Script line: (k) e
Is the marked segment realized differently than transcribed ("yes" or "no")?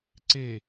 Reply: yes